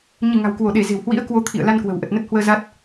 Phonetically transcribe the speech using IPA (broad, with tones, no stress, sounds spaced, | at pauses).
ɲ ɨ˧˩ ŋ a̤˨˩ w k w o˧˩ ɗ e˧˩ z e̤˨˩ w h w ḭ˧˥ ə̯ k w o˨˦ t̪ʰ ḭ˧˨ ə̯ l a˧ n k w ə̤˨˩ w ʔ ə˨˩ t̚ n ə˦˥ t̚ h w əː˧ z a˦˥ t̚